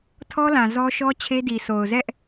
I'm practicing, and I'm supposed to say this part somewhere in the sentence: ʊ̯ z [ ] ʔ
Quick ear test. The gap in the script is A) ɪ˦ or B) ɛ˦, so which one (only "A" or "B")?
B